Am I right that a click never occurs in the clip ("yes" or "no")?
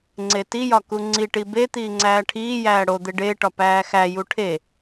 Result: no